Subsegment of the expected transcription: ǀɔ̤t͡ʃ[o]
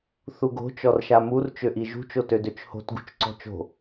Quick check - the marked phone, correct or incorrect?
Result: incorrect